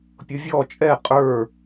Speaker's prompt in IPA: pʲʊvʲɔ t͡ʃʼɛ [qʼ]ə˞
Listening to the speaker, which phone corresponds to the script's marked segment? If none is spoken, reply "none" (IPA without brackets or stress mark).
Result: qʼ